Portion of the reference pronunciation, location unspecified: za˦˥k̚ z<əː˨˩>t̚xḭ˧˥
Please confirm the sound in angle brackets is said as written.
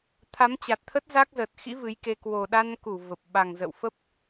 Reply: yes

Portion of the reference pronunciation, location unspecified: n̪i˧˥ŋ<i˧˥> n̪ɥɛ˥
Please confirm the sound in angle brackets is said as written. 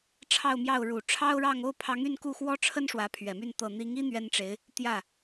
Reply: no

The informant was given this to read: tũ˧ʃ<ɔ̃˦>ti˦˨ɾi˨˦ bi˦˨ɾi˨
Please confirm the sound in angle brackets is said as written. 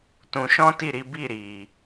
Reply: yes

